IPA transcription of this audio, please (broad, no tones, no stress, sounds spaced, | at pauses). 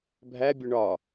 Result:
bʱ æ bʲ ʊ ɳ ɒ